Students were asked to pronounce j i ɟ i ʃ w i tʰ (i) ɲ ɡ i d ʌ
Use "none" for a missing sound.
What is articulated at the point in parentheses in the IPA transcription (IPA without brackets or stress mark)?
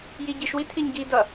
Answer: i